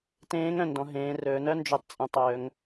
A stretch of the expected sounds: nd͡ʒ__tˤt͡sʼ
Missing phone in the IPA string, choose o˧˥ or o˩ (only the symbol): o˧˥